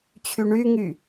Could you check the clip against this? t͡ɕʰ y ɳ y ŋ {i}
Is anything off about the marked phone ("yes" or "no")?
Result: yes